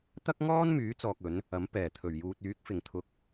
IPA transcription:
t̪ɐ˥k̚ŋɔː˥nmyː˨˥ t͡sɔː˧k̚ɵ˨˥n | ɐ˨˥m pɛː˨˩t̪ʰɵ˨˩ɥjuː˨t̚yː˨˥k̚ fɪ˨ŋt̪ʰʊ˧k̚

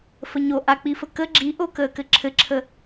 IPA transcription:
fəɲo ʔak͡pifə kə ɡ͡ǁiʔokəːkɘ ǁʰɘǁʰə

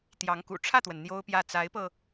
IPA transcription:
t̪jɑ˧˥ŋkṵ˨˩ ʈ͡ʂʰä˥˩t̪wə˩n n̪jo˥ʊ̯pjä˥˩ t͡sa˧˥ɪ̯pɤ˧

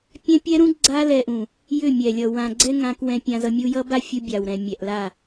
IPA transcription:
pʲɛ̃˦ pʲɛ˦ɾũ˦ ɡ͡ǀa˧ lɛ˧ʔũ˨ | jʏ˦˨mʲɛ˨lʲʌ˨ wã˨ɡ͡ǀɛ˦ ŋã˧k wɛ̃˦pʲã˦zʌ˦ mʲu˧jʌ˦ba˦ fʲu˦ bʲa˨wɾɛ̃˨ mʲɛ˨ʔla˦˨

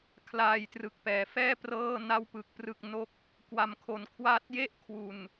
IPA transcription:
kʰlaː˧jtrɯ˨˩k̚pɛː˩˦fɛː˥˩ prɤː˥˩na˥˩wpɯ˨˩k̚ prɯ˥˩k̚no˥˩k̚ | kwa˧mkʰo˧n kʰwaː˦˥t̚je˥˩ʔkʰwu˨˩n

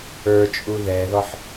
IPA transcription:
ə˞t͡ʃʼu ðɛðɔħ

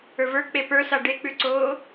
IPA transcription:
ə˞və˞ k͡pepə˞ saɖek͡pʉǀoː

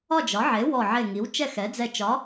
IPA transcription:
ɒ˥˨d͡ʒɒ˩˥ʕe˩˥ wɔ˧˩ʕe˧˩ŋi˩˥w t͡ʃɛ˥˨xɛ˩˥d͡zɛ˧˩ t͡ʃɒ˩˥

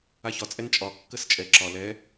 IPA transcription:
açɒ t͡sʼɛnt͡ʃʼɒ kːəst͡ʃʼɛ ǁɒ lɛ

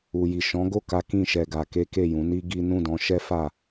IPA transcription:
u˨ji˨ ʃɔ̃˨˦ɡo˦˨ka˨˦ kĩ˦˨ʃɛ˧ɡa˧ ke˦ke˦˨jũ˨˦ni˦ ɡi˦ nũ˦˨dɔ̃˨˦ʃɛ˦fa˦˨

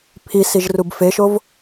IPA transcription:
pʰisiʒrub feʃov

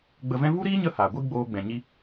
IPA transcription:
ɡ͡bə˧vɛ̃˦ vu˦ɾiː˦ɲə˧ haː˨ ɡʷi˦ɡ͡boː˧ɡ͡bɛ̃˨ ɲi˦

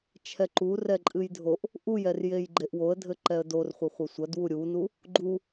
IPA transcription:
t͡ʃʰɛǃu rɛǃʼɨjdʱoʔ | ʔujɛrjej ɡ͡ǃeʔwoə̯dʱɘ ǃɛə̯dor χʷɘχʷɐsʷɐdwu ɾʲunu | ɡ͡ǃu

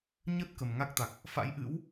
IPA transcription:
ɲə˦˥t̚ kə˨˩m ŋa˦˥k̚t̪a˨˩k̚ | fa̰˧˥jʔɨ̰˧˥w

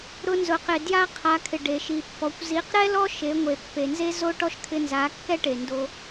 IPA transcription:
ɾʊ˧nzʊ˨qɪ˨ dja˦qʰa˧kʰɪ˨ɖe˨ ʃi˨pːɔ˨kʷ zi˨˦qɾɛ˦lɔ˦ ʃe˨˦ŋʷe˨ pːe˨nze˦zo˦ ʈɔ˦ʃkʰɪ˧nza˨˦ kːɛ˦ʈe˨ndo˧

